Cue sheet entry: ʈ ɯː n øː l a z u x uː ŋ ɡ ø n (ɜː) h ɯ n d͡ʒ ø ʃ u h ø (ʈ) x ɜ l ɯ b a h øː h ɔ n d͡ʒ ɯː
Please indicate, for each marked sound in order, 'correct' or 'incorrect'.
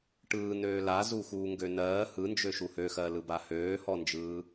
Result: correct, incorrect

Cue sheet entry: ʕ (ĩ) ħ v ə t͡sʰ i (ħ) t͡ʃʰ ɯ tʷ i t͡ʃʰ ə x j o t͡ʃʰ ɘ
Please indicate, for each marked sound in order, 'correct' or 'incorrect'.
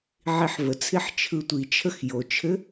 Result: incorrect, correct

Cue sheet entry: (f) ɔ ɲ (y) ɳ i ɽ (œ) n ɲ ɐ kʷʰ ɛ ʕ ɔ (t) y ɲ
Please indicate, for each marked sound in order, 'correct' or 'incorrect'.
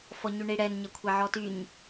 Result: correct, correct, incorrect, correct

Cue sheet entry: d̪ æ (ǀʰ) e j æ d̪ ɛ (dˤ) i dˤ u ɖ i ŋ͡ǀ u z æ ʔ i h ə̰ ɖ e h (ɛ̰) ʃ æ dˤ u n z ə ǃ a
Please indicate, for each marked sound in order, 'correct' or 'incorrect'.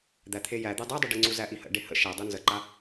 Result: incorrect, correct, incorrect

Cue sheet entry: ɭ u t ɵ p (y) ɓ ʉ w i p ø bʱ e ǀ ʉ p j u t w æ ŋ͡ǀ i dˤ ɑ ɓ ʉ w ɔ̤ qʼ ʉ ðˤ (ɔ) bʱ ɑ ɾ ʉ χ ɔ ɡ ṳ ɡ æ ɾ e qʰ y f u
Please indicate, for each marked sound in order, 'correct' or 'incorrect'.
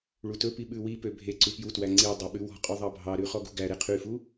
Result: incorrect, incorrect

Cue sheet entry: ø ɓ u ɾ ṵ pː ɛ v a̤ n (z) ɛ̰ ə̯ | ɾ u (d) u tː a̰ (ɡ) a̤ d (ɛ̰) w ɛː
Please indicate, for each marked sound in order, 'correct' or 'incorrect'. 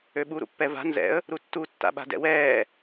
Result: correct, incorrect, incorrect, correct

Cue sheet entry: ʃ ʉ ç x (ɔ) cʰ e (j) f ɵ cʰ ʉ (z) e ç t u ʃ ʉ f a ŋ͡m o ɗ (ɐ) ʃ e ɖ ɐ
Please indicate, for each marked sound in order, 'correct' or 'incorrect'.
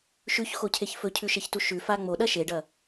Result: incorrect, incorrect, incorrect, correct

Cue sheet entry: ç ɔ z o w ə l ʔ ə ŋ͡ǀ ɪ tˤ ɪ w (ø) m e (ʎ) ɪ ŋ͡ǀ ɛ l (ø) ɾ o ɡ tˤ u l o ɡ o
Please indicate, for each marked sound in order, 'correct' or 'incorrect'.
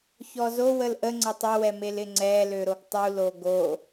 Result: incorrect, incorrect, correct

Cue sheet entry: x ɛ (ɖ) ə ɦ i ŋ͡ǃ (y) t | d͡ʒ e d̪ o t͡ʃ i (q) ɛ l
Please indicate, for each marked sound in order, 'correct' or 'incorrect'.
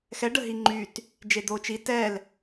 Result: correct, correct, incorrect

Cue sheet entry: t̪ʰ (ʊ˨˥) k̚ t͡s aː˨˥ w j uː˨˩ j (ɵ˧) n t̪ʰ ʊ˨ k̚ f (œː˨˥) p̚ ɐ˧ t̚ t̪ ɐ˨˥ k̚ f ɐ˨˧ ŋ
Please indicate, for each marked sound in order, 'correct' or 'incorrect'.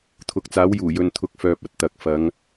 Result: correct, incorrect, incorrect

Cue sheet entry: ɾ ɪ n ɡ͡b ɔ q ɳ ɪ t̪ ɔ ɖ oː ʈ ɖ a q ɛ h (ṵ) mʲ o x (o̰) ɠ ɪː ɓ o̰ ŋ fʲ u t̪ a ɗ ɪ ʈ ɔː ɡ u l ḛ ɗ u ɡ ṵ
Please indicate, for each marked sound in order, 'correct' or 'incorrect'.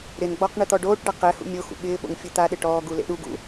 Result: correct, incorrect

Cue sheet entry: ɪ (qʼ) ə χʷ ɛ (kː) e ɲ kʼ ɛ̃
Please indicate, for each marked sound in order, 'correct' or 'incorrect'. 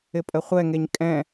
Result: incorrect, incorrect

